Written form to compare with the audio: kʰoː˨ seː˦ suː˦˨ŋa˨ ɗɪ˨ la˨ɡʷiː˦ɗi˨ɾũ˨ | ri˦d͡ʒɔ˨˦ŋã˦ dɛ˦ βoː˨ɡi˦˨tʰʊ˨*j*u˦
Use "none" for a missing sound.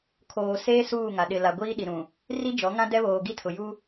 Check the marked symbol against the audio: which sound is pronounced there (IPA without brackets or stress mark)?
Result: j